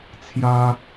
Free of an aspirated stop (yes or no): no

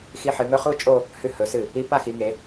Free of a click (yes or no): yes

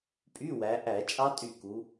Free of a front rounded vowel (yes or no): no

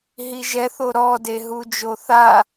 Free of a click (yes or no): yes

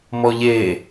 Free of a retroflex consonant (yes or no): yes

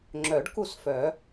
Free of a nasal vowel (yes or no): yes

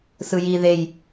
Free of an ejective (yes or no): yes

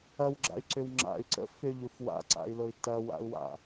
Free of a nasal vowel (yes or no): yes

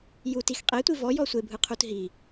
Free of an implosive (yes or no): yes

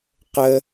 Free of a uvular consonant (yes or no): no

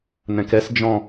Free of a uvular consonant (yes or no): yes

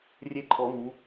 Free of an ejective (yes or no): no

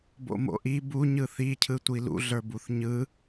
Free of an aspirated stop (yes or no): no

